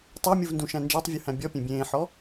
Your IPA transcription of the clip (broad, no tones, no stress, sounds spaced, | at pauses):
tˤ æ mʲ u v n d ũ ʃ æ̃ n d͡ʒ æ tˤ vʲ u h æ̃ bʲ ɔ pʲ ẽ bʲ ẽː ħ ɔ